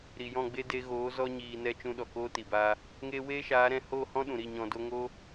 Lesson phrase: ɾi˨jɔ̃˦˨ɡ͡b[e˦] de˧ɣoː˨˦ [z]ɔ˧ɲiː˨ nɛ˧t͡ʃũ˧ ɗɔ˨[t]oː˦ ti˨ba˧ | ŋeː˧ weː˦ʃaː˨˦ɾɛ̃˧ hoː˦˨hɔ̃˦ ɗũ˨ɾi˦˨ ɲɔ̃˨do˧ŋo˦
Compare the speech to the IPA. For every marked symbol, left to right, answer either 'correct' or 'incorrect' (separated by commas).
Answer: correct, correct, incorrect